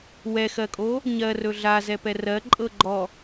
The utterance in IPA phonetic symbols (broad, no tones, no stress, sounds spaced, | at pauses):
w ɛ x ɜ kʼ o | ɲ ɜ r ɵ ɮ a z ɛ p ɛ r ɜ ǃʼ ɤ ɡ͡ǃ ɔ